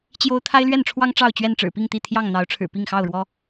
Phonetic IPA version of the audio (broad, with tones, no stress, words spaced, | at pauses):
t͡ɕjo˦ʊ̯ t̪ʰa˦ɪ̯lɥɛ˥˨nʈ͡ʂʰwɑ˦ŋ ʈ͡ʂɑ˥˨ʊ̯t͡ɕɥɛ˥˨n ʈ͡ʂɻ̩˨˩pi˥˨ŋt̪i˥˨ t̪ʰjɑ˥˨ŋn̪ɑ˨˦ʊ̯ʈ͡ʂʰɻ̩˨˩ pi˥˨ŋxɑ˥˨ʊ̯ɻwɔ˦